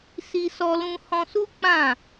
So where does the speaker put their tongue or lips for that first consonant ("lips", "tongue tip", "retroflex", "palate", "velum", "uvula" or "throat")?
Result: tongue tip